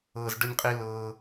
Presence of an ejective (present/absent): present